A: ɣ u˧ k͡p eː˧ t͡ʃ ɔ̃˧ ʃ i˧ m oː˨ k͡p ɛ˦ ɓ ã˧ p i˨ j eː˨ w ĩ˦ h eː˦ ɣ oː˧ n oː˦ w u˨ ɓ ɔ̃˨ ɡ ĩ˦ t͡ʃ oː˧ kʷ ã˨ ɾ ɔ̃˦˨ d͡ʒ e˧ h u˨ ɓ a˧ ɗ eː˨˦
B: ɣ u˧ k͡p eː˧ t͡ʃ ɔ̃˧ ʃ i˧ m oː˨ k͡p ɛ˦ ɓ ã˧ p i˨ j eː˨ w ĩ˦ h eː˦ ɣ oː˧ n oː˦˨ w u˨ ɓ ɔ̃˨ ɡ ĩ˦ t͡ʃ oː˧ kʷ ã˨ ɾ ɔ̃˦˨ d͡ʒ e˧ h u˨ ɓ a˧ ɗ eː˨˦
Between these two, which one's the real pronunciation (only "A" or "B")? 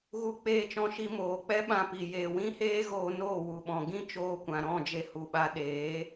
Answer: B